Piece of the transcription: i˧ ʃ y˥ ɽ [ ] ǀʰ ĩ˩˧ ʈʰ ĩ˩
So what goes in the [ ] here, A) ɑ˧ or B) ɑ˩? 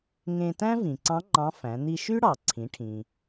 B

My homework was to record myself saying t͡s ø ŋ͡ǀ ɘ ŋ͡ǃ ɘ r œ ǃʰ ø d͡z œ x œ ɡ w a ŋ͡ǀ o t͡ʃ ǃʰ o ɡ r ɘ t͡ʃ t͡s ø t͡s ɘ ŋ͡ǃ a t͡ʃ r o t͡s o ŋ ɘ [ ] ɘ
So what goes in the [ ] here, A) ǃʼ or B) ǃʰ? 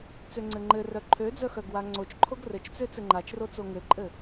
A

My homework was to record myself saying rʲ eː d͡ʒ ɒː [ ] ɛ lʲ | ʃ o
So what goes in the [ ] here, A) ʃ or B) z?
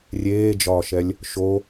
A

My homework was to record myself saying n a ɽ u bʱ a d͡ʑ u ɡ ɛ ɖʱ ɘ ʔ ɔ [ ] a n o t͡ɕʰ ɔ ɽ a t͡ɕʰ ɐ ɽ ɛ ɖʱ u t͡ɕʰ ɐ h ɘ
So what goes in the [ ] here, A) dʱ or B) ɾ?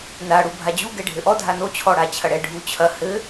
A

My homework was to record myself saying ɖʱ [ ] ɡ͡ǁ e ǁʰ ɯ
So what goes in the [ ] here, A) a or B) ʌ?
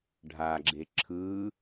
A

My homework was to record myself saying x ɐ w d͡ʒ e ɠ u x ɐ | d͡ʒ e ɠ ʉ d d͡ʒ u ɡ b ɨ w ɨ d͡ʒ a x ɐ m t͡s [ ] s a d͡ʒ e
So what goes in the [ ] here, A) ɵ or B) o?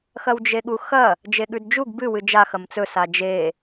A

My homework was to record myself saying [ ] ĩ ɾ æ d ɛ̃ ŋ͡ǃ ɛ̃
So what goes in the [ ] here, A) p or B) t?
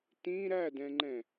B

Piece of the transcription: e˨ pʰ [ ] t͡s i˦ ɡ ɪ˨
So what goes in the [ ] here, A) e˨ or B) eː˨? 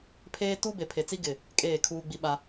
A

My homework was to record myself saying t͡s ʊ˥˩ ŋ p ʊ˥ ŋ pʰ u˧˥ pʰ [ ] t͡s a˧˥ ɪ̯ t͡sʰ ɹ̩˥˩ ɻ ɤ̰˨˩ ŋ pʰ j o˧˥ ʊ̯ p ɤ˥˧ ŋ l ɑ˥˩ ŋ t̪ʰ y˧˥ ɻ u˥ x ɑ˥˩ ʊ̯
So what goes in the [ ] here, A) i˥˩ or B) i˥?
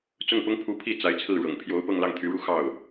A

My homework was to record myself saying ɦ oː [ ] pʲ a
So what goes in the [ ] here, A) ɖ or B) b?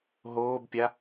B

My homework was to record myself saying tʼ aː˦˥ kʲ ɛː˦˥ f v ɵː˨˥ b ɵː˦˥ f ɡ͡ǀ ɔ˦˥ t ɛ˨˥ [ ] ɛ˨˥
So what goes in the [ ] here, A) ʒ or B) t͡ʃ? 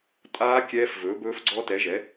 A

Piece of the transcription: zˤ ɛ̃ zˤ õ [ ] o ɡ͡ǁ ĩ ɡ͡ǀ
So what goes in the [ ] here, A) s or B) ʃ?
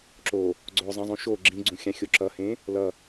B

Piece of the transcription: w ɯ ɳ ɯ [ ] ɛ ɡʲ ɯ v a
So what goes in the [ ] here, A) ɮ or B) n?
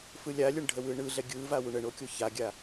A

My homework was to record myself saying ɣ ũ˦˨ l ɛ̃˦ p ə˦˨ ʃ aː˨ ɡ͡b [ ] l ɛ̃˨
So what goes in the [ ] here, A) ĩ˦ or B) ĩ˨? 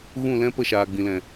B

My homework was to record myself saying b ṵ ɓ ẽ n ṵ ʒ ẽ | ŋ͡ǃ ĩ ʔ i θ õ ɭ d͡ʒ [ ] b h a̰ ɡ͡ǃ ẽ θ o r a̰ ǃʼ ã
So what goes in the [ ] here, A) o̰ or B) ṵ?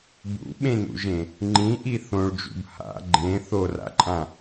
B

